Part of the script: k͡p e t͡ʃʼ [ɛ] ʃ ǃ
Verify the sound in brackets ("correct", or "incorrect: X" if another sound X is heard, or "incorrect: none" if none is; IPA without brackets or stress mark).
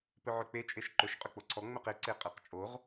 incorrect: e